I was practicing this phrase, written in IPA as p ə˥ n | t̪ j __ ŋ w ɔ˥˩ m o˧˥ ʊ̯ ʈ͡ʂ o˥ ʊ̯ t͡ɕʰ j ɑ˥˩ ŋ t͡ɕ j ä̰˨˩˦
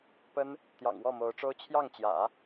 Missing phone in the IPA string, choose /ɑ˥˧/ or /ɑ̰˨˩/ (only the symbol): ɑ̰˨˩